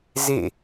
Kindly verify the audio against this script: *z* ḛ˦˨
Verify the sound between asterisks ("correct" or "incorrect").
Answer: correct